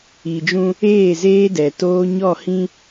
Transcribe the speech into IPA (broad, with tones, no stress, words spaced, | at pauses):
i˨d͡ʒũ˦ | eː˦˨zeː˦dɛ˨toː˦ ɲɔ˦˨ hĩ˦